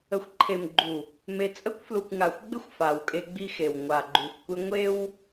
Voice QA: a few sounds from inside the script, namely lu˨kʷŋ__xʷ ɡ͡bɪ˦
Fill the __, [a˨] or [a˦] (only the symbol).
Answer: a˨